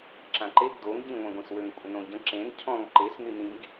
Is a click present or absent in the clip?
present